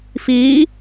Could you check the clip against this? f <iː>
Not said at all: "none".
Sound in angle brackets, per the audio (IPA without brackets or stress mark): iː